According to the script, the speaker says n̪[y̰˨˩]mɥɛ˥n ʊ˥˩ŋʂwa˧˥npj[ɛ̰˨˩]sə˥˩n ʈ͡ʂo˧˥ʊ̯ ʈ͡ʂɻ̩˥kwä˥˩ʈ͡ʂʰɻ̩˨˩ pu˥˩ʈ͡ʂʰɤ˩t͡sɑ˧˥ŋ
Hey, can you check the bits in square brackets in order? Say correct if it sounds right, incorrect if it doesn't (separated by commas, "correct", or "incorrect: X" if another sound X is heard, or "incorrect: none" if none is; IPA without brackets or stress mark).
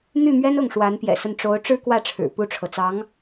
incorrect: y˥˩, correct